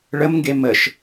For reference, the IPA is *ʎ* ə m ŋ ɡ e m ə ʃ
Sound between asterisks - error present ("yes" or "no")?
yes